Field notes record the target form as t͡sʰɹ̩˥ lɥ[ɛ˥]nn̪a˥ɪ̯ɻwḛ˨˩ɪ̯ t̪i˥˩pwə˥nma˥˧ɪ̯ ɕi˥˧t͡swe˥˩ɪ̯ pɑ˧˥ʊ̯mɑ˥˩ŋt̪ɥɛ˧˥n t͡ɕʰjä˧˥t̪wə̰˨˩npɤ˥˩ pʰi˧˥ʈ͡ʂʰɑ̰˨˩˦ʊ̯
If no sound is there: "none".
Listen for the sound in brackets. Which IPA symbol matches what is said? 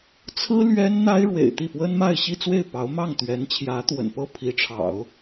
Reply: ɛ˥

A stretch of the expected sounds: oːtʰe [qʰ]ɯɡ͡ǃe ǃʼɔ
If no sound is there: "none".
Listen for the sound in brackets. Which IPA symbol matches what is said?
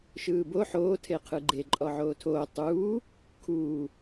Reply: qʰ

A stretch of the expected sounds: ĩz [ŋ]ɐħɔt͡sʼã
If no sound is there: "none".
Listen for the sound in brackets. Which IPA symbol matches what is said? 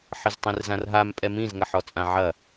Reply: ŋ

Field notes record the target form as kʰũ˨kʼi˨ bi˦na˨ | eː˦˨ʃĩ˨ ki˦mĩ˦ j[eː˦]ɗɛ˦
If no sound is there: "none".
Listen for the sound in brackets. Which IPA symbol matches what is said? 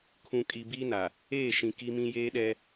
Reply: eː˦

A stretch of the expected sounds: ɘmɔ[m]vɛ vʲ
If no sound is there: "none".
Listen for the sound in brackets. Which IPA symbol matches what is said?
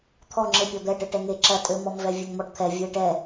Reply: m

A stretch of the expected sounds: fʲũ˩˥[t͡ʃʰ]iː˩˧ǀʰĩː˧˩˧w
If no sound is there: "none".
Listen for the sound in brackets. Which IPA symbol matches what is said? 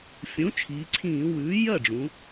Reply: t͡ʃʰ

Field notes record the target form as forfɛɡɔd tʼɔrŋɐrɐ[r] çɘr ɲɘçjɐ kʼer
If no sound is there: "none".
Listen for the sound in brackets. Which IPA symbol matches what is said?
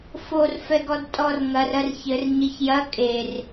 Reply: r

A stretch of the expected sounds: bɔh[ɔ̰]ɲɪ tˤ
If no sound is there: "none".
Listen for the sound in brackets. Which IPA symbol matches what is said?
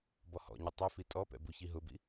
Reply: ɔ̰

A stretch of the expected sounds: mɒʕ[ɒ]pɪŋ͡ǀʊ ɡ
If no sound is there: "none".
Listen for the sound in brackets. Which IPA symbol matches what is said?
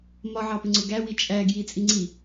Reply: ɑ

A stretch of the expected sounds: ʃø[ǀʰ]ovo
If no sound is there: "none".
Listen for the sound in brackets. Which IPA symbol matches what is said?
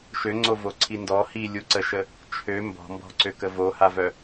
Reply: ŋ͡ǀ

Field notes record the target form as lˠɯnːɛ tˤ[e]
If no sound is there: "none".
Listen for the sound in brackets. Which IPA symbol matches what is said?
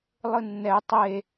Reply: e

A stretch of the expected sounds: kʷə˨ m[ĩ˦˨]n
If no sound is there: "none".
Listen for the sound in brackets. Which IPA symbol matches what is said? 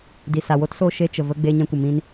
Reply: ĩ˧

